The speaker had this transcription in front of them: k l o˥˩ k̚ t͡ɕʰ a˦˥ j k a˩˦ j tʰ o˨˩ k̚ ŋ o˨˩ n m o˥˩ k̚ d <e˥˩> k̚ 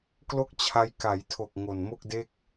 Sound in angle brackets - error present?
no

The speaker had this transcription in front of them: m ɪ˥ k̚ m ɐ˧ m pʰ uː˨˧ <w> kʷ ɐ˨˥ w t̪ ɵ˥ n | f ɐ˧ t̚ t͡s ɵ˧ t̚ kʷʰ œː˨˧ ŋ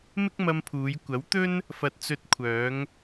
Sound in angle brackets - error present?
yes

